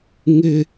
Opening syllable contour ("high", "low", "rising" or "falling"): high